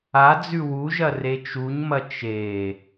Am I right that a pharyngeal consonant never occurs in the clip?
yes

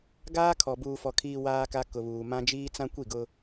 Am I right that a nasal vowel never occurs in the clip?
no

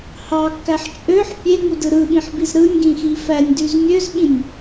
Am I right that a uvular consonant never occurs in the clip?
yes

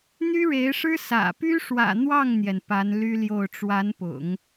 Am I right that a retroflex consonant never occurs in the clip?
no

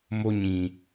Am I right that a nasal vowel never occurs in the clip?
no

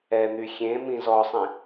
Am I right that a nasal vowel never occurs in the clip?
no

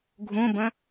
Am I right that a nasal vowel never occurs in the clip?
no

